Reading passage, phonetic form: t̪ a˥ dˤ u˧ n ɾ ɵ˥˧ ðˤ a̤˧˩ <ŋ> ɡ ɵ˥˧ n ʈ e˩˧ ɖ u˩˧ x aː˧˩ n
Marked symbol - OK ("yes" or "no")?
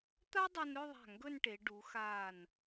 yes